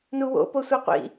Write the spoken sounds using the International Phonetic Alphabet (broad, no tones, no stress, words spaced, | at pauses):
nuwo̰ posʷɤqʷḭ